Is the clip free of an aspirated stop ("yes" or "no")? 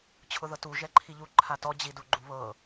no